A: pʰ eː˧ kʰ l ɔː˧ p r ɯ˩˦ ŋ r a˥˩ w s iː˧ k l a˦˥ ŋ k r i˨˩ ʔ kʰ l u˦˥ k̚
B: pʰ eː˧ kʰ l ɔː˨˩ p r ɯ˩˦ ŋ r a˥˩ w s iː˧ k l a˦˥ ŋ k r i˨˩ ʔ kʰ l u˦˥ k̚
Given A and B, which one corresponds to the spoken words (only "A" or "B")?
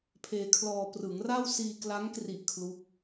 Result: A